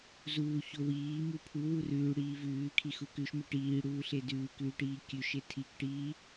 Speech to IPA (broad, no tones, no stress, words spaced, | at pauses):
zuːço wiː mupʰu wurʉːɽiː vʉːkʰi xukʉʃme ʈiːɽuːɬe dʉːkʉːʈiː kʲʉʃe tʰikʈiː